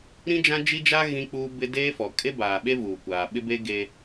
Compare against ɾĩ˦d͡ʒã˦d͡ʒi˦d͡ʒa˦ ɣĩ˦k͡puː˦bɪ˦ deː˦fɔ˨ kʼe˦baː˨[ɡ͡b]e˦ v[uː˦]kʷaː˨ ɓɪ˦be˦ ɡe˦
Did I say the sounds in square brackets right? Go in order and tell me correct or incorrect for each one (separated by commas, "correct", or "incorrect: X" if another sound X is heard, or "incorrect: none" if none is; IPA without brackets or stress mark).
incorrect: ɓ, incorrect: uː˨